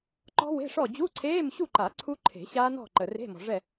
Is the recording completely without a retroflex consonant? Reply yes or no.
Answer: no